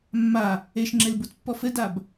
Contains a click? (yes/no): yes